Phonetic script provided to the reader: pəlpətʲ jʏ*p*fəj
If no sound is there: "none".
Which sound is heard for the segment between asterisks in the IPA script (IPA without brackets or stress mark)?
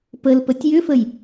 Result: none